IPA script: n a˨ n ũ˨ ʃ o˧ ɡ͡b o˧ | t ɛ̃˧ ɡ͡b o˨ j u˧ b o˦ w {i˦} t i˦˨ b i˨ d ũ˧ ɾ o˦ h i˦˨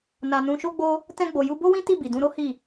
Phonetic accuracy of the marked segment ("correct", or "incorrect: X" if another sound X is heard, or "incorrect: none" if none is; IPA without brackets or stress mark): incorrect: ĩ˦